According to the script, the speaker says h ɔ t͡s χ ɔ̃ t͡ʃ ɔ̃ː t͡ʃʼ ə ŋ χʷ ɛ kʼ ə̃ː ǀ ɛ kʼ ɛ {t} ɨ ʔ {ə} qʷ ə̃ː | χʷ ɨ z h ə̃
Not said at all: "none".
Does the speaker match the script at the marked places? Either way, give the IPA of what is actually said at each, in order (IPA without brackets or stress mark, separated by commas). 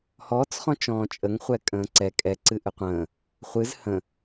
ǀ, ɨ